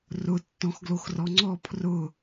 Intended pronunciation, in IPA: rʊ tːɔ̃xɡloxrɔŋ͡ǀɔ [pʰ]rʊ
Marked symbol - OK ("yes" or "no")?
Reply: yes